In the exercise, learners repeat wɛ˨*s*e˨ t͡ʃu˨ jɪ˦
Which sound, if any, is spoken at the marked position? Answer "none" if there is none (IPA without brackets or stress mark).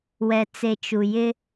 t͡s